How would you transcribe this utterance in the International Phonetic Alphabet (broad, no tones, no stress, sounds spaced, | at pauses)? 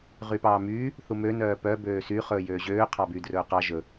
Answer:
ʁ y p ɑː m yː | θ u m ø n œː p œ b øː s y χ ɵː j øː ʑ øː qʰ ɑ b yː d r ɵː q ɑ ʒ ɵ